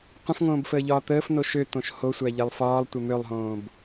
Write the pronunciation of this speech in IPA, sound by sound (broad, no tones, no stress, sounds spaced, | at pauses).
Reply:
qʷ ə̃ f ŋ õː b f əː ʎ ɒː t̪ əː f n o ʃ ø t̪ õ ʃ h o sʷ æ ʎ ɛ lˠ f ɒː lˠ tʷ ɛ m ø lˠ ɦ õː b